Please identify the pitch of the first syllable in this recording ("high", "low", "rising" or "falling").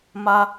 high